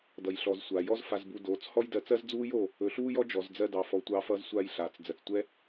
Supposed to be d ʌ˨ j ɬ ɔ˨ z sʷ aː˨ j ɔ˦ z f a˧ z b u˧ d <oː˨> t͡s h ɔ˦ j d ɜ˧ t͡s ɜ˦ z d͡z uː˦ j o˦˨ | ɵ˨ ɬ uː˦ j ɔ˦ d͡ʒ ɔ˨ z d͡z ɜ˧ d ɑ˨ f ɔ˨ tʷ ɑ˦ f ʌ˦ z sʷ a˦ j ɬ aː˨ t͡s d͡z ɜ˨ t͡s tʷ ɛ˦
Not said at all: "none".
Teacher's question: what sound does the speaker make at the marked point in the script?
oː˨˦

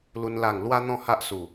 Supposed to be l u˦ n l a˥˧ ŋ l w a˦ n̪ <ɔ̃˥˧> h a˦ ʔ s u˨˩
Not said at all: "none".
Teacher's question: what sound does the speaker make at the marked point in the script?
ɔ̃˥˧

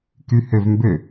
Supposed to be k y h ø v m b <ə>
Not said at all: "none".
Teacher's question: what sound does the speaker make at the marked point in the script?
ø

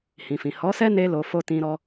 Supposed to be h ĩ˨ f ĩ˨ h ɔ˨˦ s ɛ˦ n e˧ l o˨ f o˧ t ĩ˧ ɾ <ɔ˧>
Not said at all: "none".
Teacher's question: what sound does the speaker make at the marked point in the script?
ɔ˧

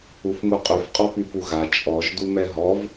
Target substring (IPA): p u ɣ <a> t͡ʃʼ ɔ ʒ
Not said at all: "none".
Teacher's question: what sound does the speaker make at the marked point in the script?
a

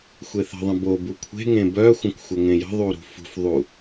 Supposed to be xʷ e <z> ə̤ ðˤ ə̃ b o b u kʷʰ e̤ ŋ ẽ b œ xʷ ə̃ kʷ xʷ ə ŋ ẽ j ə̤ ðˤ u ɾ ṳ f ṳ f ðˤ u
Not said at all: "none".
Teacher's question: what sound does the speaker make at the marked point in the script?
θ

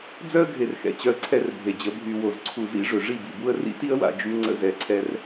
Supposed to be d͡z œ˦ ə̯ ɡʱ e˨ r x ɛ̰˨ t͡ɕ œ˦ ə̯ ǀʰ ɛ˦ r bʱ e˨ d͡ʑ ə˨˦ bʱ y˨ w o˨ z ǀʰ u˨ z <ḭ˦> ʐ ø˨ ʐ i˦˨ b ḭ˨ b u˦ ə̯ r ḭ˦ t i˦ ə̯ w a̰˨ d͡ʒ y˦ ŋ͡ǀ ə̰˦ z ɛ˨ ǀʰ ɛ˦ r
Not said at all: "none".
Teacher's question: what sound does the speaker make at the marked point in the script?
ḭ˦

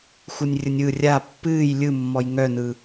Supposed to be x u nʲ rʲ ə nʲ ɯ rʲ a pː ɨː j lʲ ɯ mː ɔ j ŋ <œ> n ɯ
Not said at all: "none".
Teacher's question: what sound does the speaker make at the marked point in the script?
œ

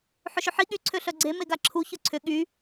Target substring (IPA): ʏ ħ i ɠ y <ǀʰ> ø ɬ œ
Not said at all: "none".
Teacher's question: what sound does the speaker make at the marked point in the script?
ǀʰ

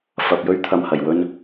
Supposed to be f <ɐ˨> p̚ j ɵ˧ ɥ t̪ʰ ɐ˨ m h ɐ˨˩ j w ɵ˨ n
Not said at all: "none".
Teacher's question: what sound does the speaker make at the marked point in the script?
ɐ˨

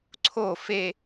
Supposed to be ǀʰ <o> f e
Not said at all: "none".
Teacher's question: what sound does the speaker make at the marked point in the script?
o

